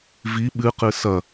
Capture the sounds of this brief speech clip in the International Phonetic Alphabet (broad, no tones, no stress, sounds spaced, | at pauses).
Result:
v i ɓ ɨ q ɨ s ɐ